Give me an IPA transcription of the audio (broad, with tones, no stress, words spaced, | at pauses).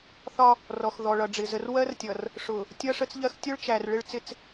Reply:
θɒ˦ | rɔ˨x ðɔ˨ɭʌ˨ɖ͡ʐɪ˨ zə˨rwɜ˦rtʲʌ˨r | ʂʊ˨ | tʲʌ˦ʂə˦t͡sʎɜ˦x tʲʊ˦ɭt͡ʃæ˨r ɭɪ˦ɭ t͡sɪ˦t͡s